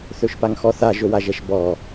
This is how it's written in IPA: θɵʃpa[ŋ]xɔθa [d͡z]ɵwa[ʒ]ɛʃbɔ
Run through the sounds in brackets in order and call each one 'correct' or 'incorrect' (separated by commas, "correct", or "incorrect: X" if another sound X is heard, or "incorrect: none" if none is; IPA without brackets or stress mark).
correct, incorrect: ʒ, correct